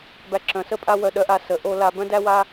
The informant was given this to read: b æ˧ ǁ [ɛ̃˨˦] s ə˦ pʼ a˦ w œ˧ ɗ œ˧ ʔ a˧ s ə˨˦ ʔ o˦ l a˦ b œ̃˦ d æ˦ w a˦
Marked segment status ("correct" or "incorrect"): incorrect